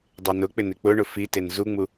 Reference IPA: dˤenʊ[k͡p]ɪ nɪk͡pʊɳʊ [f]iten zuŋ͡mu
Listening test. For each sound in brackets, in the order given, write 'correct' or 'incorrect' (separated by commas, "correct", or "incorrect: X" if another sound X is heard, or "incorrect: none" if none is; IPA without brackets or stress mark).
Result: correct, correct